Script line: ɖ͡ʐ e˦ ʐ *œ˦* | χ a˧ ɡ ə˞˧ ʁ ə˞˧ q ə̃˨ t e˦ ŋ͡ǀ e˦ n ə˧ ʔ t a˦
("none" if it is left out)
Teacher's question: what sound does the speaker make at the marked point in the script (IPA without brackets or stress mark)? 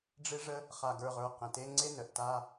ə˦